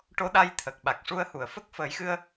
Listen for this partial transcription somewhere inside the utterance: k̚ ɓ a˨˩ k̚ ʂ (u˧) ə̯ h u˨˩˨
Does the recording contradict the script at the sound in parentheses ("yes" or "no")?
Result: no